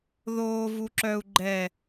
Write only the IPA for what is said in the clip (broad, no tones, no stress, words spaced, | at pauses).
ðoː vuǁœu̯ ɡ͡ǃɛ